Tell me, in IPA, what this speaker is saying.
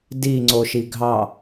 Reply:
diŋ͡ǀoʃi ɡʱɑ

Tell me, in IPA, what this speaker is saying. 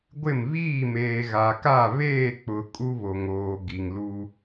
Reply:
ɡʷɪ˦˨m βiː˦˨meː˨ ɣa˨ka˦˨ βeː˦˨k͡pʊ˨ kʼu˦βo˨ŋoː˨ ɡi˨ŋlu˦

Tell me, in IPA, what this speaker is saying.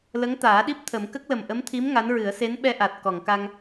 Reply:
lə˧˥ŋt̪aː˨˩˦ɗi˦˥p̚ t̪ʰə˨˩˦m kə˦˥k̚lə˨˩mʔə˧˥mt̪ʰi˧˥m ŋa˧˥nɹɨ˨˩˦ə̯ se˧˥nɓɛ˧ʔa˨˩t̚ kɔ˨˩˨ŋka˧ŋ

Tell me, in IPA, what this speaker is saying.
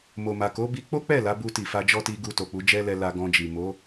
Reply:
mo˨ma˨ko˨˦bi˧ k͡po˦k͡pɛ˦˨ la˨˦bu˧ ti˨fa˧d͡ʒɔ˦ti˧ ɡu˧to˨k͡pu˨˦ d͡ʒɛ˦lɛ˧la˧ ɡɔ̃˧d͡ʒi˨ mo˨˦

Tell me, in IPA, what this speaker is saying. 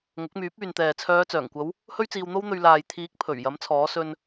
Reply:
ŋʊ˨˥k̚myː˨˥p̚ yː˨nt̪ɛː˨t͡sʰœː˨˧ t͡sœː˨˩ŋkʷɐ˨˧w | hɵ˥ɥt͡siː˧wn̪o˥wn̪ɵ˧ɥ laː˨jt̪ʰiː˨˥k̚ pʰɵ˨˩ɥ jɐ˨˥mt͡sʰɔː˨˥sɵ˧n

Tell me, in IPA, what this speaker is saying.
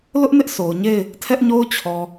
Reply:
lʊ˦ʔnɪ˦ʔ sʰo˨ʊ̯ɲe˦˨ɪ̯ | tʰɛ˦ʔɲo˦ʊ̯ t͡ɕʰɔ˨

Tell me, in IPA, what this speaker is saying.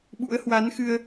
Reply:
ɓṵ˧˥ə̯hwa˨˦nxɨ˧ə̯

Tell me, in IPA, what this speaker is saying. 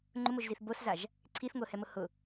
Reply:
ŋ͡ǃʊmoʒziθ boszaʒ | ǀʰiθŋʷɪə̯hɛmʊ hʊ

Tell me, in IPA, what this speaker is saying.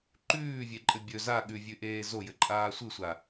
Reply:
ǃʉːvʲeǃʼɘ bʲɵ za ɠʉvʲʉʔeː zojɘǃʼaː sʷɯsʷa

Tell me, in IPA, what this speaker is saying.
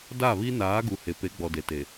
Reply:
da˦˨βi˦ naː˨˦ɡu˨ he˨pe˨˦ɡ͡bɔ˨ de˨te˨

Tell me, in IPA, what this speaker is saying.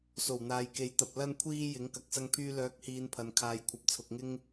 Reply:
so˨˩wn̪aː˨jke˨˥jt̪ɐ˨p̚ lɐ˧nkʷʰiː˧ jɪ˨˥ŋkɐ˨˥k̚ sɐ˥ŋpʰyː˥ lœː˨˥k̚hiː˨n pʰɐ˨n kʰaː˨jkʷʰɐ˨˥p̚t͡sʰʊ˨k̚ŋɪ˥ŋ

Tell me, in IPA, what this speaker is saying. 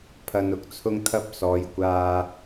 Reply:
pʰɐ˧n ʊ˥k̚t͡sʰʊ˧ŋt̪ʰɐ˧p̚ sɔː˨˧jkʷaː˧

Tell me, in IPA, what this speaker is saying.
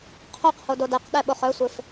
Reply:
qʰœqho dodɛqɗɛ ɓoχœsʷef

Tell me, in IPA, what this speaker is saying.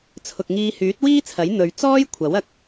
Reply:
t͡sʰʊ˨k̚ŋiː˧ hyː˨˥t̚wiː˥t͡sʰɐ˨˥j n̪ɵ˨˧ɥ t͡sɔː˥j kʷʰɐ˨˥wɐ˧k̚

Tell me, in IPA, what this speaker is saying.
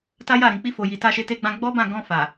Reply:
ta˦ja˦˨ ɾĩ˨k͡pi˧fo˨ji˨ ta˧ʃe˧ te˧ɡ͡bã˧ɡ͡bɔ˦bã˦˨ ɡɔ̃˧fa˨

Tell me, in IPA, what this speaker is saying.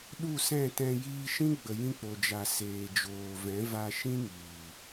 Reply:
ɗu˦˨sɛ̃˦˨ tɛ̃˧ jiː˧ʃĩ˦ɡ͡bə˨jĩ˧ k͡po˨d͡ʒa˨ seː˨d͡ʒoː˨vɛ̃˨˦ va˧ʃĩ˦ ŋiː˨

